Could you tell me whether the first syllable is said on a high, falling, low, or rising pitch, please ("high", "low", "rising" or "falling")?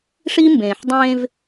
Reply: high